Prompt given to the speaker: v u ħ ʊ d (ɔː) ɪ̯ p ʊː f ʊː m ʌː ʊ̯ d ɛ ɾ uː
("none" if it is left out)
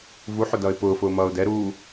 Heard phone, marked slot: ʌː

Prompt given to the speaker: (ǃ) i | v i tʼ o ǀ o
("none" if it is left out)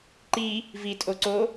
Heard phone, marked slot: ǃ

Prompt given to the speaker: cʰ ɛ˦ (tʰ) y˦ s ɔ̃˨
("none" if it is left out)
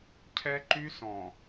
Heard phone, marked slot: ǃ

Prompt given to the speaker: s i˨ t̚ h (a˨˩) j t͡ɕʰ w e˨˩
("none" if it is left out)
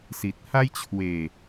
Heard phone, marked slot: a˦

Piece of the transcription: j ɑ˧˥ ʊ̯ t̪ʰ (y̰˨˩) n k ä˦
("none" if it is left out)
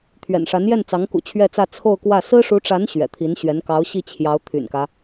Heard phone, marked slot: y̰˨˩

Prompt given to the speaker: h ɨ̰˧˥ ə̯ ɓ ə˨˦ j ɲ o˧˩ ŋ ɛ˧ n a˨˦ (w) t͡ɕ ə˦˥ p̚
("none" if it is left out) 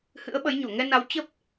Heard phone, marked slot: w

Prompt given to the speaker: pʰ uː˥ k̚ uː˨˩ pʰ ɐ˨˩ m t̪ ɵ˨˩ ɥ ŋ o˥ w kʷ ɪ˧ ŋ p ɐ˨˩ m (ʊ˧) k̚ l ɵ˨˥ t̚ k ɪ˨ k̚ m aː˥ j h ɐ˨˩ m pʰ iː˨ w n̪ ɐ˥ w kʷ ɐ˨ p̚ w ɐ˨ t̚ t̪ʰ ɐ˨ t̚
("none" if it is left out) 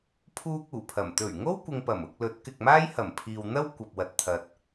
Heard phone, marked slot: ʊ˧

